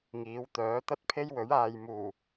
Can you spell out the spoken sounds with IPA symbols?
ŋ iː˨˥ w t̪ œː˨˥ t̪ ɐ˥ t̚ pʰ e˥ j w ɵ˨˥ ɥ aː˨ j m uː˨˩

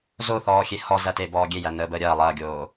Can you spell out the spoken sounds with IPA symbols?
z o θ ɔː xʲ e h ɔ z æ t e b ɔː ɡʲ e j æ n əː b əː ɾʲ ɐː lˠ ɐː ɡʲ oː

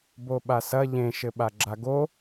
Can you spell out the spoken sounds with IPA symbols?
b o ɓ a s ɐ ʎ ẽ ʃ ɘ ɓ a ɡ͡ǁ a ɡ o

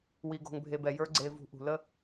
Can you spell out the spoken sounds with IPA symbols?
w i˧ ɡ o̤˧ ŋ bʱ e˧ b ɛ˩ j ə˞˥ ɡ͡ǀ e˧ v ṳ˧ ʔ ṳ˩ l ə˥

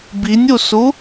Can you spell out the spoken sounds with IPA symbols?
b i nʲ u s u

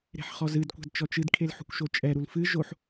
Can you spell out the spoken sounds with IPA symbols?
ɾ e̤ ħ χ ɔ z ɨ d kʷ a̤ d t͡ʃ ɔ t͡ʃ ɨ d kʰ e l ħ ṳ kʷ ʃ o t͡ʃʼ ɛ ɾ u l f ɨ ʒ o ħ

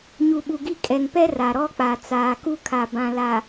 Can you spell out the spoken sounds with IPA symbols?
ɲ u˨ ɓ u˨ ɡ i˦˨ kʼ ɛ˨ ŋ p ɛ˦ r a˨ ɾ ɔ˦ k͡p a˨ t͡s aː˨ k u˦ kʰ a˨ b ã˨ l a˨

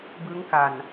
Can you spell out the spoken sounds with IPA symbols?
b ɯ˦˥ ŋ k a˨˩ n

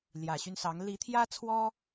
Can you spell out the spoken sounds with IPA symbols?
l j ä˨˩ ɕ y˦ n s ɑ˨˦ ŋ l i˨˦ t̪ʰ j ä˦ t͡sʰ w ɔ˦

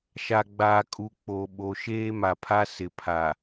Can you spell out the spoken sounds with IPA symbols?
ʃ a˨ ɡ͡b aː˨ kʼ u˨ k͡p o˨ ɓ o˨ ʃ eː˦ m a˨ pʰ a˦ s ɪ˨ pʰ a˨

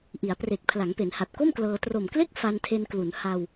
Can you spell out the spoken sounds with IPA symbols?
ʔ i˩˦ a̯ p r e˨˩ k̚ pʰ l a˩˦ ŋ p e˩˦ n h a˨˩ t̚ k o˥˩ m k l ɤː˧ t r o˨˩ m k l e˥˩ k̚ f a˧ n tʰ e˧ n k l u˩˦ n h a˧ w

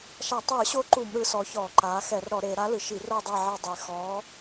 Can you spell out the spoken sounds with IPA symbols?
ʃ a˧˩˧ tˤ ɯː˧˩˧ ɕ o˧˥ ǃ u˧˩˧ m ɾ ɯ˩˧ s ɔ˩˧ ç ɔː˧˩˧ ǃ aː˩˧ x ɛ˧˩˧ r ɾ ɔ˧˩˧ ɾ e˩˧ ɾ a˧˥ l ɯ˩˧ ʃ i˧˩˧ r o˦˨ dˤ ɛ˦˨ ʕ ɤ˦˨ dˤ e˦˨ x ɔː˧˥

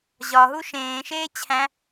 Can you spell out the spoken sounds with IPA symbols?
ʑ ɒ ɦ u ʃ ẽː ʃ eː t͡ɕʰ æ̃

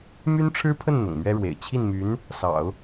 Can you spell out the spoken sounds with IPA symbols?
m y˥ n ʈ͡ʂʰ ɻ̩˥ pʰ ə˥˩ n n̪ ʊ̰˨˩ ŋ m ɥ ɛ˥ ɻ w ḛ˨˩ ɪ̯ t͡ɕʰ i˥˩ n m y˧˥ n | s ɑ̰˨˩˦ ʊ̯

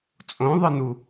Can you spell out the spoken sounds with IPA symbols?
t͡sʼ õ ðˤ ɯ n u

